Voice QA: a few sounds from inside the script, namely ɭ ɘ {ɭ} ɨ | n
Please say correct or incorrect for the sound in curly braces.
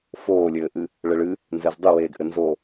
correct